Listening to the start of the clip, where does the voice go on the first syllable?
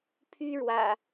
high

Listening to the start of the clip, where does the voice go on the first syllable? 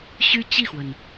high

